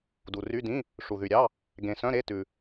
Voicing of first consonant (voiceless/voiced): voiced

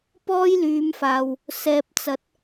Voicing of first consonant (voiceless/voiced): voiceless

